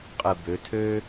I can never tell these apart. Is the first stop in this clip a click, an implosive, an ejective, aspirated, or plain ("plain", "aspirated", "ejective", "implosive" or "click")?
ejective